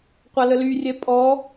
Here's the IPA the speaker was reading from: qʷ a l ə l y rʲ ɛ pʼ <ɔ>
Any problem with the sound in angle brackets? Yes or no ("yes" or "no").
no